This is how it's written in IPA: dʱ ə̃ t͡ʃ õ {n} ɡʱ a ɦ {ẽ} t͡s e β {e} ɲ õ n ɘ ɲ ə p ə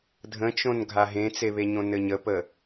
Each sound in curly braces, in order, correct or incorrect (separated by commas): correct, correct, correct